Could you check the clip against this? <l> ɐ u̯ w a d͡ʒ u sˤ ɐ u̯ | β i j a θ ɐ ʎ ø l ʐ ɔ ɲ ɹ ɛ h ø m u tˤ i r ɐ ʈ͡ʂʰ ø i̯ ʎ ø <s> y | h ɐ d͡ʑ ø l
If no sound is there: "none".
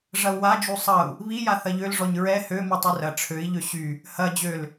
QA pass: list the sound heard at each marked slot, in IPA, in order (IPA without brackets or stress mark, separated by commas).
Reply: ʐ, ɕ